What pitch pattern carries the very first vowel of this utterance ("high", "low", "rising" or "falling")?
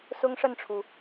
high